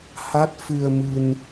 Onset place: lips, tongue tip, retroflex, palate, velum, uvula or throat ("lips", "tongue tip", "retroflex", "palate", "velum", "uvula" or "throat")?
throat